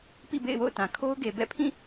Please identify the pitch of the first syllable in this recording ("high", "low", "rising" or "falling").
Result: falling